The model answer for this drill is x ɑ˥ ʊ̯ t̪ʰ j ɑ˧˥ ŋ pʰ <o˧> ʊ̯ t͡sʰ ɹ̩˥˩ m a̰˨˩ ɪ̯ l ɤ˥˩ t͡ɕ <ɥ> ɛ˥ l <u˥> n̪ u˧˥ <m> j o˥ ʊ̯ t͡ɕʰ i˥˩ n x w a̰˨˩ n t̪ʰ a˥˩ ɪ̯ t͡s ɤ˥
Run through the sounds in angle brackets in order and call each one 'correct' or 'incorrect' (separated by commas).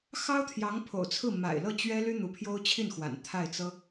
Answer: incorrect, correct, incorrect, incorrect